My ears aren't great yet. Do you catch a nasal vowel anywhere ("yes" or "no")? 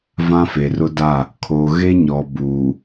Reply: yes